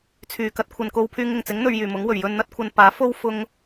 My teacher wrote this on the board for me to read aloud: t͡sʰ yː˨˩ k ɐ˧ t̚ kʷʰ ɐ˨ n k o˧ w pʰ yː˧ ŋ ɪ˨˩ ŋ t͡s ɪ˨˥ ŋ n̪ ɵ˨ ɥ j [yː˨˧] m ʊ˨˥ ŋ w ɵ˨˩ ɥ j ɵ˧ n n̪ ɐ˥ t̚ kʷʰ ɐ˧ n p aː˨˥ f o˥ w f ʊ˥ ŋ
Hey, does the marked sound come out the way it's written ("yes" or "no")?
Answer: no